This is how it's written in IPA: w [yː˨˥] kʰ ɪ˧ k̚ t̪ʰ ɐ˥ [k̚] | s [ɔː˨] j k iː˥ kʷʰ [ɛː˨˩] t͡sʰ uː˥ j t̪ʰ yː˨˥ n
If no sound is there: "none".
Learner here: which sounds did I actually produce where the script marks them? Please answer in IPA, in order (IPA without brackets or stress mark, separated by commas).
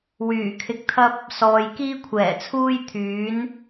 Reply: yː˨˩, p̚, ɔː˨, ɛː˨˩